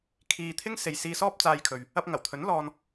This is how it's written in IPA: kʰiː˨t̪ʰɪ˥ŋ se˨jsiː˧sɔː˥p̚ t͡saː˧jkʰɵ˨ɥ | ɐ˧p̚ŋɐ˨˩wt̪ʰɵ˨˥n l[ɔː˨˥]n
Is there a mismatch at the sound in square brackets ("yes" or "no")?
yes